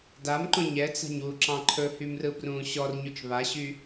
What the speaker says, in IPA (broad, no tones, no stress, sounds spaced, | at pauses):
d a m ǃ õ ɲ ɛ t͡s a̤ ɲ w u ǁ ɑ̃ ǃʰ ɵ h y m r ɯ b r ũː ɕ ɔ r ɲ u t͡ʃ β a ɕ y